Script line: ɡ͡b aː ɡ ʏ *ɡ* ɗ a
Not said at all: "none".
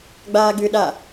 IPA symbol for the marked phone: none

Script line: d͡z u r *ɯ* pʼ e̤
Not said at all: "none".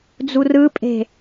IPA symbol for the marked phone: ɯ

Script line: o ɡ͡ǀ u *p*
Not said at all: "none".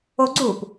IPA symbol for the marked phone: p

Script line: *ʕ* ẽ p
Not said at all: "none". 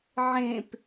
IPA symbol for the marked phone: ʕ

